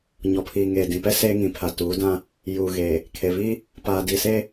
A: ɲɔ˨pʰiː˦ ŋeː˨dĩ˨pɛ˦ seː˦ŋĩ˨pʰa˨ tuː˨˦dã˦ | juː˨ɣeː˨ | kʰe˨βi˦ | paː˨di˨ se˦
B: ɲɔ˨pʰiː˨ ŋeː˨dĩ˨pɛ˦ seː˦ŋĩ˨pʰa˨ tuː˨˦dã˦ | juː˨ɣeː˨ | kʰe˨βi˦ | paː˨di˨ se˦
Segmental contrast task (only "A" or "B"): B